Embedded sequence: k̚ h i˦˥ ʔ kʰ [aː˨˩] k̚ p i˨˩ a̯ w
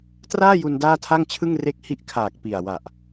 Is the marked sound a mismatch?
no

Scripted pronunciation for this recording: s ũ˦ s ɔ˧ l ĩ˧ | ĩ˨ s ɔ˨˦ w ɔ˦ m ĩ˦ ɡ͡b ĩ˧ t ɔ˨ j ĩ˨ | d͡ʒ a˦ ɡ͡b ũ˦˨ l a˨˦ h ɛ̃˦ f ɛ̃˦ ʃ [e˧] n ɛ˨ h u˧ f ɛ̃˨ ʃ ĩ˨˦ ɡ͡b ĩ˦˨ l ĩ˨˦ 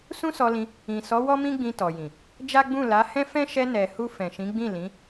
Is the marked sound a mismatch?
yes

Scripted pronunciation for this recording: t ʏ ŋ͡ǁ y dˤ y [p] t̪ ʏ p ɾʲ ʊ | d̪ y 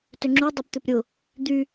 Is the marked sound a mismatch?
no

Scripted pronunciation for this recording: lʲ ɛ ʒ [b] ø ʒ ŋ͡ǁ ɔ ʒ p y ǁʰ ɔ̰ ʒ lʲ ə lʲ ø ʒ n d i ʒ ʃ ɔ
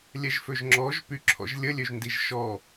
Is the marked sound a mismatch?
yes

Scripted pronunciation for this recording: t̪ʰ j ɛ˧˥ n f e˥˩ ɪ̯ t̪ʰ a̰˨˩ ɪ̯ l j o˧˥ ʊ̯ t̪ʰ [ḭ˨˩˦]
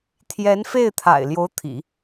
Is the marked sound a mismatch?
no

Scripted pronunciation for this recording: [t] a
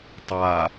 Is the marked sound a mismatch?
yes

